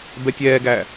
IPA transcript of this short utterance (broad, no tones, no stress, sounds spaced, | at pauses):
b ɛ tʲ ɛː ɡ æ